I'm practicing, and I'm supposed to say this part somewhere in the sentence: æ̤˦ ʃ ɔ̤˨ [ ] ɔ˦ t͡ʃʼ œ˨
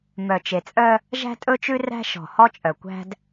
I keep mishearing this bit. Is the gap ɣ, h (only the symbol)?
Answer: h